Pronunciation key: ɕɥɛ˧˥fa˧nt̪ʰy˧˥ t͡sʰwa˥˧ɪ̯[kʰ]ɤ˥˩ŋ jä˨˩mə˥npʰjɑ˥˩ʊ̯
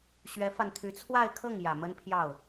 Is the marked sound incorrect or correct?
correct